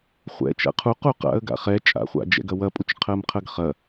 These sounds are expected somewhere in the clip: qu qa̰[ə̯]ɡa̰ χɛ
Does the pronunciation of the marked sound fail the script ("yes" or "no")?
no